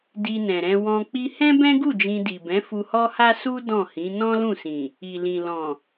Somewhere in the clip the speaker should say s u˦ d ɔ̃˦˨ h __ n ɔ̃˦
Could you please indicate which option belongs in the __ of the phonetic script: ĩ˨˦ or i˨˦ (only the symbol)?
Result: ĩ˨˦